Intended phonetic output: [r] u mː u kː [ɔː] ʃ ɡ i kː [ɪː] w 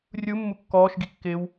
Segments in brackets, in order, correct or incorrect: incorrect: rʲ, correct, correct

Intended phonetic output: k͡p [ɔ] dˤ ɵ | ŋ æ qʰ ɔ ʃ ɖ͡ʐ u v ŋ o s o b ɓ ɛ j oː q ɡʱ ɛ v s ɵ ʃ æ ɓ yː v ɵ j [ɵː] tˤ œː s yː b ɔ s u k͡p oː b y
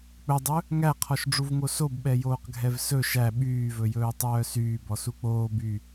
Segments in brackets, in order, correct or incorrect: incorrect: ɵ, correct

